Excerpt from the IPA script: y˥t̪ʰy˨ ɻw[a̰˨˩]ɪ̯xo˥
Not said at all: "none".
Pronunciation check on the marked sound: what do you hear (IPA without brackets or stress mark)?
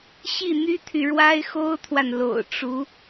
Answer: a˥